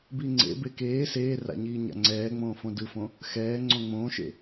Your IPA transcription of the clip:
biŋ͡ǀḛbe keː seːra̰ ɲiːɲa̰ŋ͡ǀɛːŋ͡mõː fõdɯfõ | xɛː ŋ͡ǀõŋ͡mõːʃḛ

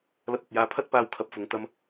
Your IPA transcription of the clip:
lɐ˧t̚ɐ˨t̚jaː˧ pʰɐ˥t̚paː˧w kʰɐ˧p̚fʊ˨˧ŋ t̪ɐ˧m

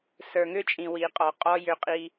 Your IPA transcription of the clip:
sə˞˨ŋʏ˦ t͡ʃʼĩ˨wi˨qʼɔ˨ qʼɔ˦jʏ˦qʼi˦

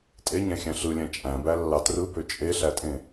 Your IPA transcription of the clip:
tʼeɲæ̃xʲæ̃ ɬɯlʲæ̃ t͡ʃʼæ̃bælːɑ trɯbø t͡ʃʼeɬætʼẽ

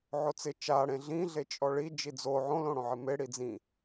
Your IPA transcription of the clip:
ʕot͡sɪ t͡ʃaɽẽ ɮĩ ɮet͡ʃʼɔɭi d͡ʒid͡zo ʕõlõɽõʕɪ me ɽid͡zĩ

